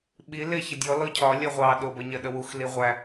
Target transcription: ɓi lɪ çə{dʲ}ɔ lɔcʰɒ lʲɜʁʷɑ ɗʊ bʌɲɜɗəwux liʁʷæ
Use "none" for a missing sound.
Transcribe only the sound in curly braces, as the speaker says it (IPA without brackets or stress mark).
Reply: dʲ